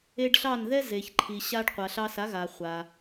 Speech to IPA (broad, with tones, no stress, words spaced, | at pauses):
e˧ɖ ɬɑ˥˩n ðɛ˥ ze˩çǃʰi˩ɕa˧ɖ qʷa˩ɬɑ˧sa˩˥ɣa˩ χʷa˩